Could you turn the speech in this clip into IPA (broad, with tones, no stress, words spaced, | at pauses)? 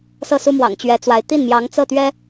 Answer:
sɤ˥˩su˥mwɑ̰˨˩ŋ t͡ɕɥɛ˧˥t͡swa˧˥ɪ̯ t̪i˥˩nmjɑ˧˥ŋ t͡sɤ˥˩t̪ɥɛ˥